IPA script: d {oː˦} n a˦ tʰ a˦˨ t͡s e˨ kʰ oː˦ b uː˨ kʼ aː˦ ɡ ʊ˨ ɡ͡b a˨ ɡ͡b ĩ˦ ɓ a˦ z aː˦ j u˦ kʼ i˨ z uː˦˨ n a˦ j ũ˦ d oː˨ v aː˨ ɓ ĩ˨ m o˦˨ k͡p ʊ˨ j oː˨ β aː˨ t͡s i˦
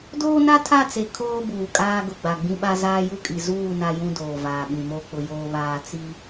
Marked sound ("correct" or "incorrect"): correct